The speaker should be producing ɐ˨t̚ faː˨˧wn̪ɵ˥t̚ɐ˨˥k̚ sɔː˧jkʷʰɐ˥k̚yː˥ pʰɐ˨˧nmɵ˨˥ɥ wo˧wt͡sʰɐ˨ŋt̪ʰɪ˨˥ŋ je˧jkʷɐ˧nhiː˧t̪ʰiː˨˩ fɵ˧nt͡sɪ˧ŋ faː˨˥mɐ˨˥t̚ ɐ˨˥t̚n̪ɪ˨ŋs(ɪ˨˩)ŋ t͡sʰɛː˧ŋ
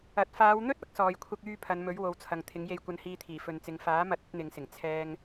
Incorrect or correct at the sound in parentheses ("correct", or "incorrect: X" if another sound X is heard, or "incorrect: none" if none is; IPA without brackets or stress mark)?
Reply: correct